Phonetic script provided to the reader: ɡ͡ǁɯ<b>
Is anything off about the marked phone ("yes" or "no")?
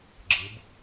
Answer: no